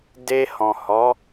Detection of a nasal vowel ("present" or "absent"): present